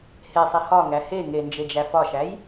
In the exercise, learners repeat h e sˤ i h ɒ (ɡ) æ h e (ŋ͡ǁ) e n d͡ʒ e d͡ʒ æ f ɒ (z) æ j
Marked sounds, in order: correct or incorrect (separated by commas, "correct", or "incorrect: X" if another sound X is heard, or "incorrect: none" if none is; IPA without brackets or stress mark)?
incorrect: ŋ, incorrect: ŋ, incorrect: ʃ